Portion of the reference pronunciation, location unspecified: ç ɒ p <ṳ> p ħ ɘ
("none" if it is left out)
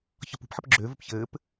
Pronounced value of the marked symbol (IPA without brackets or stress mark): ṳ